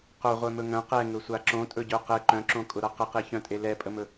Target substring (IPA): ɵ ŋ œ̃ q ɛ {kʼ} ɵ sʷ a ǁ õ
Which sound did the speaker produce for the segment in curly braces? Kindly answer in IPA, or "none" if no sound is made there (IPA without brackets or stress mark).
ŋ